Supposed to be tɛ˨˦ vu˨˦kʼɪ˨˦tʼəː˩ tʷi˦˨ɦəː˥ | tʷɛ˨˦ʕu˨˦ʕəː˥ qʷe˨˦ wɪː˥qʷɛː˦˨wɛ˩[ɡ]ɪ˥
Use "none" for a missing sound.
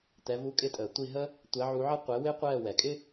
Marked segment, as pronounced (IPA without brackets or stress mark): kʼ